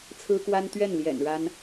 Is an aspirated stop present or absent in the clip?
present